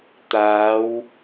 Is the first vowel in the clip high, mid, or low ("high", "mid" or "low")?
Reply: low